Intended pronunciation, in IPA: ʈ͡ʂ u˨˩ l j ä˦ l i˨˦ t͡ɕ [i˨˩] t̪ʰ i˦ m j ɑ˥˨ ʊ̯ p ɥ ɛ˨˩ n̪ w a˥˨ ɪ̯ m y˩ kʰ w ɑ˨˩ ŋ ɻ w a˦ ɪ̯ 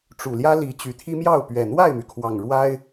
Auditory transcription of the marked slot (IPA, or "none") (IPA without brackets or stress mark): y˨˩